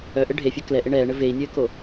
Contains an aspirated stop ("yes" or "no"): no